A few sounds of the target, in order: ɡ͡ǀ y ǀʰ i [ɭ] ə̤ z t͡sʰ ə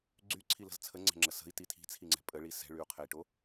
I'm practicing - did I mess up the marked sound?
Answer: yes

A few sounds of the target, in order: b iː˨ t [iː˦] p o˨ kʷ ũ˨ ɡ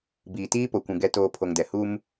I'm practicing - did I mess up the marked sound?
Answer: no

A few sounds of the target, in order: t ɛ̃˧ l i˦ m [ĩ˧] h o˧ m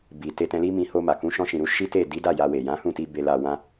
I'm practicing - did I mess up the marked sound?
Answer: no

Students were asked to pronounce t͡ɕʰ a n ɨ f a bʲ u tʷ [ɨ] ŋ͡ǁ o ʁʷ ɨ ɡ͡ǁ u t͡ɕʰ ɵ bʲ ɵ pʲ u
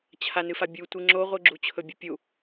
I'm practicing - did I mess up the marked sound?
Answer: no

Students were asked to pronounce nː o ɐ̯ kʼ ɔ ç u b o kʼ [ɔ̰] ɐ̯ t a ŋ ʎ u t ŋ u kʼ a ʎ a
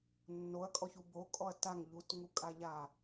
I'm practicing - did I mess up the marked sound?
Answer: yes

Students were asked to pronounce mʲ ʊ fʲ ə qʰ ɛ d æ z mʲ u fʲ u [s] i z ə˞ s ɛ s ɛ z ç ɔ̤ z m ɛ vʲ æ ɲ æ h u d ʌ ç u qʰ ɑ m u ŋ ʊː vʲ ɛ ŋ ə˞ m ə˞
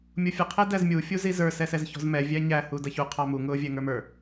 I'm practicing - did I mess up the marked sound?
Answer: yes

